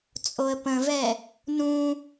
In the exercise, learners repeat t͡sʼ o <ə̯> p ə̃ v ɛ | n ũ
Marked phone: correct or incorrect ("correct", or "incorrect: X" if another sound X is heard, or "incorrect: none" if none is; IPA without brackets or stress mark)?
correct